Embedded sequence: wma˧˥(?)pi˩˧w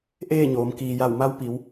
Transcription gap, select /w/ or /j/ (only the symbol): w